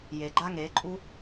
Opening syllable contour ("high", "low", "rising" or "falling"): low